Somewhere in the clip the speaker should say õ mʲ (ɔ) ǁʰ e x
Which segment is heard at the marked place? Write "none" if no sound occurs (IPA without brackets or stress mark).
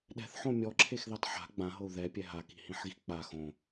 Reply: ɔ